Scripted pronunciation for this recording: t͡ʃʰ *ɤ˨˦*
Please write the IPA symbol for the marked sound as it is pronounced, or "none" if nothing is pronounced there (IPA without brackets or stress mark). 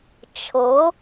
ɤ˨˦